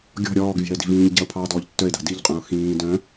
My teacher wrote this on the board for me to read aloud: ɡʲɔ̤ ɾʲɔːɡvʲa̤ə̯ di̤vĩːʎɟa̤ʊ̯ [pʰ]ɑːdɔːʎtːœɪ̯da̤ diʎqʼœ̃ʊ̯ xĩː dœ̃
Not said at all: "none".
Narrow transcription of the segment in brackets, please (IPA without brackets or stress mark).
pʰ